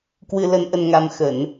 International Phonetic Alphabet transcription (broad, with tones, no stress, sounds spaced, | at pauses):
k w ɨ˧ l ə˧ n ʔ ə˧ n ŋ a˧ m x ə˧˩˨ n